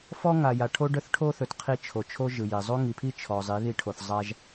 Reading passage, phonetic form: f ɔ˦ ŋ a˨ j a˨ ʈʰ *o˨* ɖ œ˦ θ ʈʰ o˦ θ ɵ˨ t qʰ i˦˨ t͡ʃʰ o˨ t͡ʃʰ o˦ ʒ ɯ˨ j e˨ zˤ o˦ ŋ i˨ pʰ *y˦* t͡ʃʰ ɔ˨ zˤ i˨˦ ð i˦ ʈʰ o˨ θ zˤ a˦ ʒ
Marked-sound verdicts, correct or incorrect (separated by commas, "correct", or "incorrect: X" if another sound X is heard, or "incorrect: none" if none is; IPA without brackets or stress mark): incorrect: o˦, incorrect: i˦